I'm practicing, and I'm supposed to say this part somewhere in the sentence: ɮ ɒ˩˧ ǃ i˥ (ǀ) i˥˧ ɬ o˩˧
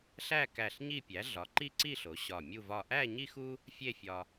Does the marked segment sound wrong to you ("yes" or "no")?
no